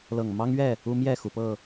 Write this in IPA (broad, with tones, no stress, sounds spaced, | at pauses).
l ɤ˨˩ ŋ m ɑ˦ ŋ ɥ ɛ˥˨ | u˦ m j ɛ˥˨ x u˩ p ɤ˥˨